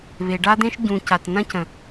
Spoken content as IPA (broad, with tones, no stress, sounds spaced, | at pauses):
β e˨ ɖ a˦ d̪ ẽ˦ ʃ ɟ ũ˨ c a˨ t n ɐ̃˦ c ə̃˨